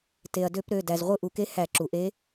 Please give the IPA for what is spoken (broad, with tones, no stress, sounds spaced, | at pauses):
t e˩ ɐ̯ d ø˧˩˧ p ɾ ø˩˧˩ d æ˩ z ʁʷ ɯ˧˩˧ ʔ u˩ k e˧˥ h æ˧˩˧ ǁ u˩ ʔ e˧˥